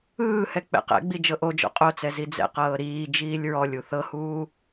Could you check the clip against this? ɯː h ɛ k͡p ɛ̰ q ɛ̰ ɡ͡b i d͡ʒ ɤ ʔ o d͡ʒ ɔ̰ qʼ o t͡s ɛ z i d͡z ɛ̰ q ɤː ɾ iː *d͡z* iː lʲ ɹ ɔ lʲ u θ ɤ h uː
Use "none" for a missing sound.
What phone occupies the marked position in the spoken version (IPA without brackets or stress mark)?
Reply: d͡ʒ